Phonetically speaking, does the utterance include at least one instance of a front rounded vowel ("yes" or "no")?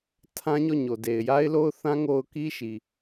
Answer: no